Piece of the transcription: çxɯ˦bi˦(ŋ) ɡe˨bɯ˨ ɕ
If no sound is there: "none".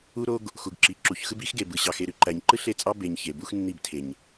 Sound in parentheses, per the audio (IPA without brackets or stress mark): x